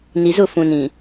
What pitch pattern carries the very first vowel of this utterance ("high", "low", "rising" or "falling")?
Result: low